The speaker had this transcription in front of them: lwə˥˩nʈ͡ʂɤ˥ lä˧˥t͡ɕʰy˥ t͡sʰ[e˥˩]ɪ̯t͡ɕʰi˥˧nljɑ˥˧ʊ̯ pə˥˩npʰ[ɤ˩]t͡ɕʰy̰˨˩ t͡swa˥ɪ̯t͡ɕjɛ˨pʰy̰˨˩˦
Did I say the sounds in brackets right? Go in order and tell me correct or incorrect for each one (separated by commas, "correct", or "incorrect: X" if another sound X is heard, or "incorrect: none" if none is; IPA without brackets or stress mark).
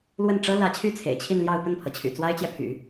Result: incorrect: ḛ˨˩, correct